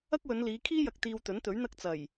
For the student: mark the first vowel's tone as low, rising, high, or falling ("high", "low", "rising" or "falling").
high